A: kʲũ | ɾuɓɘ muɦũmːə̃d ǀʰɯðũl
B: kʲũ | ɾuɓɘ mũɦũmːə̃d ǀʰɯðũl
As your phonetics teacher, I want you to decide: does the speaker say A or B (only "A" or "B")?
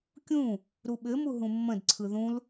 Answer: A